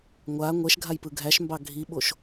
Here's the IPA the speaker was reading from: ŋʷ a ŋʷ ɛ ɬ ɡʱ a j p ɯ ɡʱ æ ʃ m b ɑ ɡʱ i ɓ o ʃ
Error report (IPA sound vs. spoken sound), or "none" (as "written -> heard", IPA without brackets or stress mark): ɬ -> ʃ